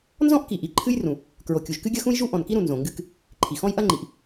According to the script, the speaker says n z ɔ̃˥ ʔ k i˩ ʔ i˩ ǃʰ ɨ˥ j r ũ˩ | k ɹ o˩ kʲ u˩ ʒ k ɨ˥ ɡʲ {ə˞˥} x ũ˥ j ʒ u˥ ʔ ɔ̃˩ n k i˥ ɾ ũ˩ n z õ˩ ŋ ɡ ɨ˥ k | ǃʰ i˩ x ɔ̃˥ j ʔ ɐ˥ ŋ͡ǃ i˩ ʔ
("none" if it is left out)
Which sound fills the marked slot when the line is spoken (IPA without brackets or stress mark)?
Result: ɐ˥